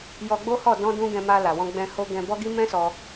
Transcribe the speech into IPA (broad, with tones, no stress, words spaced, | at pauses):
jɔ˧ɡ͡bo˦hɔ˦˨ dɔ̃˧dũ˧ ɡɛ̃˧ma˧ la˨wɔ̃˧ɡ͡bɛ̃˧ ho˧ɡɛ̃˧ bɔ˦ɡi˦ mɛ̃˦sɔ˧